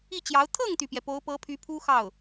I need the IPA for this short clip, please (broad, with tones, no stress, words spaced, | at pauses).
i˥˩t͡ɕjɑ˧˥ʊ̯ t̪ʰɤ˥˩ŋt̪y˩pjɛ˩ po˧˥ʊ̯pɤ˧˥pʰy˧˥ pʰu˥xɑ˥˩ʊ̯